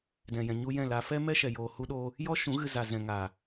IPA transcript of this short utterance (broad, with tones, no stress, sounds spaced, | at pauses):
d ɛ̃˨ j ɛ̃˨ ɲ u˧ j ɛ̃˦˨ l a˧ f ɛ˦ m ɛ˦ ʃ ɛ˨ j oː˨ h u˧ ɗ oː˧ | j ɔ˦ ʃ ũ˨˦ ɣ ɨ˧ z a˨ z ɛ̃˨ ŋ aː˨